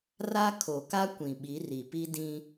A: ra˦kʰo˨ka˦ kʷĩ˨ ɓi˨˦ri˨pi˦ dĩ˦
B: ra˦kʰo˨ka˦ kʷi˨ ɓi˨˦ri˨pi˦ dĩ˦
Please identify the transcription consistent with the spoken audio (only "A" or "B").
A